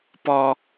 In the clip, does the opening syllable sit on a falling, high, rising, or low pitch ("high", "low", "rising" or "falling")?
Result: high